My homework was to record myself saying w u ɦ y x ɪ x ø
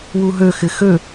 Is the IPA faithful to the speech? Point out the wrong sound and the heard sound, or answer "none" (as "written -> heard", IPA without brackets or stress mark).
y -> ø